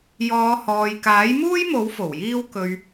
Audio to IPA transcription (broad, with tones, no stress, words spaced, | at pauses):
jɔː˨˧hɔː˨j kaː˨˥jmuː˥jmo˨˥w fo˨˩wjiː˥w kɵ˨ɥ